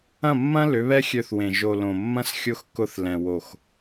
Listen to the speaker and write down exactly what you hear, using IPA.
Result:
ɐ̃˦˨ mː ɐ̃˦ l ʏ˨˦ β ɛ˦ xʲ ø˧ θ w ẽ˨ ʒ o˨ l õ˨ mː ɐ̃˦ s xʲ ʊ˦˨ x k ʊ˧ θ l ɛ̃˨ w o˨ x

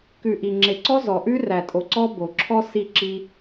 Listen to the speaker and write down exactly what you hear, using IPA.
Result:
k ʉ˨ ʔ i˨ ŋ͡ǁ e˨ ǀ ɔ˦ z ɔ˨ ʔ ʉ˦ r æ˨ tʼ o˨ ǀ ɔ˦ b o˨ ǁʰ ɔ˦ s i˦˨ ǁ i˦

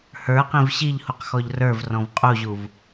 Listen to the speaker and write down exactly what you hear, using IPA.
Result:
h ə˞ q ĩ v ɕ i ʎ h u q x ɔ ʎ r ə˞ v r ɔ̃ v qʼ u ʑ u v

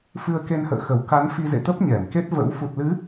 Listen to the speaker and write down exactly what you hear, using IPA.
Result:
f ɨ˧ ə̯ k e˧ n h ə̰ː˧˨ x ə˧˩ w k a˨˦ n f i˧ z ḛ˧˨ t̪ ə˦˥ p̚ ɲ ɛ˧˩ m k e˦˥ t̚ v ə̰˧˥ w f u˨˩ t̚ l ɨ˨˦

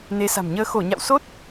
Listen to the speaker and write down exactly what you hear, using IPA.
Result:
n e˨˦ s a̤˨˩ m ɲ əː˧ x o˧˩ ɲ a̰˧˨ w s o˦˥ t̚

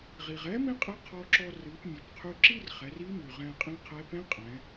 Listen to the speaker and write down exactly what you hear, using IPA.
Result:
ʁ i˩ ʁ ɛ˧˥ m ĩ˥ qʼ ɨ˧˥ qʰ ɔ˧ ǁ ɔ˧ r ɨ˩˧ p mʲ ɛ˩ p qʰ y˧ ǁ i˥ r χ ɛ˩˧ r i˧˥ m y˩ ʁ ɛ̃˧ qʼ ĩ˧˥ qʰ ɛ˧˥ p ɛ̃˥ qʼ ɛ̃˩˧

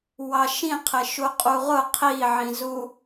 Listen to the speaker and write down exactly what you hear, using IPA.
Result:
w ɑ ʃ ĩ qʰ ɪ ʃ u qʼ u ʁ ʊ qʰ i ʕ ĩ z u

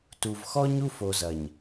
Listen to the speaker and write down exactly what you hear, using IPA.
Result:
t u˨ v x ɔ˦ ɲ u˦ f o˨ z ɐ˨ ɲ

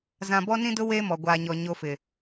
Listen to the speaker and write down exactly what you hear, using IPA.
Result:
z ã˨ b ɔ˦ n ĩ˦ d ʊ˦ w eː˦ m ɔ˨ ɡʷ aː˨ ɲ ɔ˨ ɲ o˦ f ɪ˨

